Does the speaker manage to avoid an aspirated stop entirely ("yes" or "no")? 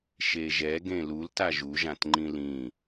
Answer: yes